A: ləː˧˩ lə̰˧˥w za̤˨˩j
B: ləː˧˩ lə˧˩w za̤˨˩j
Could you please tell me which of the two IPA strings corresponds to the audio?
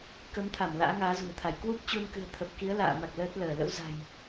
A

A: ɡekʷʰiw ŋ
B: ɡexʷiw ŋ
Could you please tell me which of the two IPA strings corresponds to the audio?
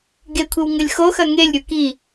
A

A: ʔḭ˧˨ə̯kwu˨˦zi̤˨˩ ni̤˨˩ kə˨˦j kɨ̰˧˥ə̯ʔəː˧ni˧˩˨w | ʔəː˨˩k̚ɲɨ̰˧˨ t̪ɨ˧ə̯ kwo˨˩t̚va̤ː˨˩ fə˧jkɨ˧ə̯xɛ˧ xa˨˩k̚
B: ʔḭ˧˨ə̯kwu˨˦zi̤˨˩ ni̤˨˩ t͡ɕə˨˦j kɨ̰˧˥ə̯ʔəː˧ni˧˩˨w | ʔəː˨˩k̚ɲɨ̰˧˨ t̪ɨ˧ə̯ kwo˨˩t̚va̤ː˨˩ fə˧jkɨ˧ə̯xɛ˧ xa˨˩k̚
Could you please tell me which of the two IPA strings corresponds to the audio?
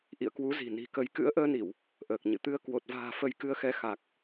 A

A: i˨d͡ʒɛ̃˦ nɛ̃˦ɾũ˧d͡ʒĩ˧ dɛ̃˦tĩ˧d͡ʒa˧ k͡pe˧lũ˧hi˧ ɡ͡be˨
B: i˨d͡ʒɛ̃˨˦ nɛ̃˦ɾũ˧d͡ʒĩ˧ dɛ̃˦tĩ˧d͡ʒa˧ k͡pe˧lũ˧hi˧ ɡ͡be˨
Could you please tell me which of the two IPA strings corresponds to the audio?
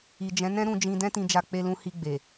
B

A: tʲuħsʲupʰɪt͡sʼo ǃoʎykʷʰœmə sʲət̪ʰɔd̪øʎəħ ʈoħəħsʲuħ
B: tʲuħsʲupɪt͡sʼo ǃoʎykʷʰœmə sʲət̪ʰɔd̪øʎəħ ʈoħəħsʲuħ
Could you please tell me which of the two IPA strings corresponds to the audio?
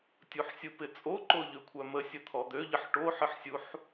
B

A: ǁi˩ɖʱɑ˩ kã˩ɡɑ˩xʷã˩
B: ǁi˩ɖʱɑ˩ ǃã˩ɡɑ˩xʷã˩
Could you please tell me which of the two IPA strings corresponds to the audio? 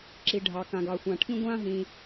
A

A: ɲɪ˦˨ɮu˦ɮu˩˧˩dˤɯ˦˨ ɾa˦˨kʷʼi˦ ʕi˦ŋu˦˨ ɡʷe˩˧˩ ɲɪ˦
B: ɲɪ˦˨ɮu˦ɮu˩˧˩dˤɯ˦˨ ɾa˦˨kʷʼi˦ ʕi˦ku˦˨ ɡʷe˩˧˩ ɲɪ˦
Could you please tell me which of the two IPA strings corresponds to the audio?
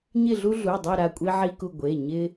B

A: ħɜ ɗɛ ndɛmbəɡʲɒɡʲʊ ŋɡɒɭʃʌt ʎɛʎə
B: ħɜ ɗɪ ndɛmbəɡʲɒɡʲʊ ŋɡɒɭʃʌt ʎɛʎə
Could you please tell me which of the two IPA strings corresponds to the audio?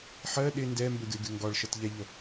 B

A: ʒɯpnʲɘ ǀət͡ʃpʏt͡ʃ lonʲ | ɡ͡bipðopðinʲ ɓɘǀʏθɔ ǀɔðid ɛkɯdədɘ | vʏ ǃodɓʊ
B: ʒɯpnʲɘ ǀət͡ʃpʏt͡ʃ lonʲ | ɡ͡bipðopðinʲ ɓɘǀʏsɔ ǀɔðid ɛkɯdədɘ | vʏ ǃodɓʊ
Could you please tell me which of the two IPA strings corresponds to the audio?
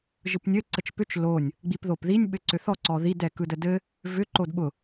A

